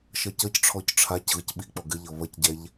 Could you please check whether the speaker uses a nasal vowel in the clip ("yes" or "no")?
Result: no